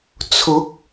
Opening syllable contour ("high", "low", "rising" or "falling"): rising